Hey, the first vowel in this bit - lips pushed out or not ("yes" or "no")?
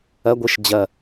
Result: no